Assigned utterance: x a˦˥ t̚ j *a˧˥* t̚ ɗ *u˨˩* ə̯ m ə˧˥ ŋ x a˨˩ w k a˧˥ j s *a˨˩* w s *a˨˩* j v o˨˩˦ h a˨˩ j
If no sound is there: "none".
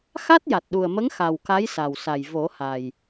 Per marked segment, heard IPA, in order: a˨˩, u˨˩, a˨˩, a˨˩

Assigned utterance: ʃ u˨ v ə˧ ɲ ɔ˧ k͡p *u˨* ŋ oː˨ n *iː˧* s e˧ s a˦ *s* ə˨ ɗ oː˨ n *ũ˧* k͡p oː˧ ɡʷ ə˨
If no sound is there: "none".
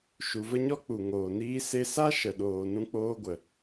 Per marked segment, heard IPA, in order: u˨, iː˧, ʃ, ũ˧

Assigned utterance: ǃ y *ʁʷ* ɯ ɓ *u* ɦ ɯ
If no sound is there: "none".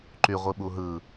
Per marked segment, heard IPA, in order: ʁʷ, u

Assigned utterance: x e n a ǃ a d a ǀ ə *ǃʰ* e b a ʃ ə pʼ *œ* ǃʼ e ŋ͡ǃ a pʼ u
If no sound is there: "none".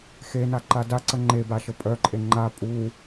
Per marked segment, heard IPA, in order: ŋ͡ǃ, œ

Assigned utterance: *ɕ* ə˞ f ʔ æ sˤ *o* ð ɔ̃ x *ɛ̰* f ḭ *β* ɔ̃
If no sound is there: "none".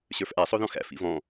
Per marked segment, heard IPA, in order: ɕ, o, æ̰, v

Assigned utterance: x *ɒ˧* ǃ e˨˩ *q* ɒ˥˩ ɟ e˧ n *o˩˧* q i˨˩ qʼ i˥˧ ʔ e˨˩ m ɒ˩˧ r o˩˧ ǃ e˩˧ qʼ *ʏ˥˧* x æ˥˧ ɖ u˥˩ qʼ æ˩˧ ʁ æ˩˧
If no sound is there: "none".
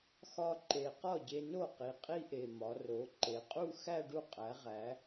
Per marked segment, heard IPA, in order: ɒ˧, q, o˥˩, u˥˧

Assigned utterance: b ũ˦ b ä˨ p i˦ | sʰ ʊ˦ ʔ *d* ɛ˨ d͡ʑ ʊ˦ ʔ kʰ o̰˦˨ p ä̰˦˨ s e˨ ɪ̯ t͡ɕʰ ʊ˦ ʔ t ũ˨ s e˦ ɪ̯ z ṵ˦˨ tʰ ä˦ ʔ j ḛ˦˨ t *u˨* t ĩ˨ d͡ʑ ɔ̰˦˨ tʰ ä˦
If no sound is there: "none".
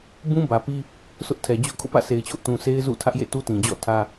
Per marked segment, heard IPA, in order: tʰ, u˦

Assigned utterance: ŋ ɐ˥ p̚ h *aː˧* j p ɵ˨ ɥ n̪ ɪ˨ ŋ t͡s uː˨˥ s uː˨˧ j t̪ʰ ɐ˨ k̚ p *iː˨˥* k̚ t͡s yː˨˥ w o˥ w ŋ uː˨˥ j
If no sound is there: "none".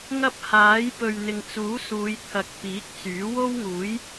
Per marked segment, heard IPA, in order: aː˨˥, iː˨˥

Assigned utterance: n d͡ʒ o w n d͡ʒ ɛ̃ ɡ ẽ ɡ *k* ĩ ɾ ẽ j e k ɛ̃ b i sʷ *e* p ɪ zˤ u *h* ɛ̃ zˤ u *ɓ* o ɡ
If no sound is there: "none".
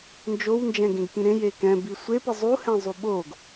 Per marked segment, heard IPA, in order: k, e, h, ɓ

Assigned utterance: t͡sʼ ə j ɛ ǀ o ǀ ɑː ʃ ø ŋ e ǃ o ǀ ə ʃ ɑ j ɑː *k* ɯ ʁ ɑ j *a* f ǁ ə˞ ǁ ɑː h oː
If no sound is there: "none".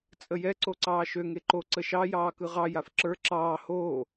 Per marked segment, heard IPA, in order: k, a

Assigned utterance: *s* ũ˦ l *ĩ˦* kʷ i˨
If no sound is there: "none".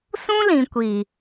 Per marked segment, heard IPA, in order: s, ĩ˨

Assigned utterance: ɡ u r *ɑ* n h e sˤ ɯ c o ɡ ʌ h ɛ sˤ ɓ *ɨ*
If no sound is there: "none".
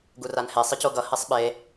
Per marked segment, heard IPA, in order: a, e

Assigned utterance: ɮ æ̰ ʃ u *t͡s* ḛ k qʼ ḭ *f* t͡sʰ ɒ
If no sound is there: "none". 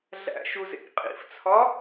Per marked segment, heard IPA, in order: z, f

